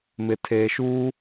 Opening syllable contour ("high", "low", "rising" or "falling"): low